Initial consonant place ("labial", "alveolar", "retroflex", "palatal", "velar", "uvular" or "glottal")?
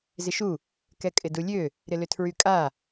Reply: alveolar